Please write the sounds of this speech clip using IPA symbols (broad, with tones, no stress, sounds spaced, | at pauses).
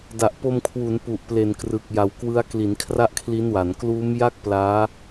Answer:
d a˨˩ ʔ p o˧ m kʰ w u˩˦ n p u˨˩ ʔ p l e˨˩ n k r ɯ˨˩ k̚ j a˨˩ w k w ɯ˦˥ a̯ k l i˩˦ n kʰ r a˥˩ ʔ kʰ l i˦˥ n w a˩˦ n k l uː˦˥ m j a˥˩ k̚ p l aː˦˥